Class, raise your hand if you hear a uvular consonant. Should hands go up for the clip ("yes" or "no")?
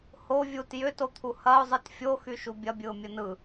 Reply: no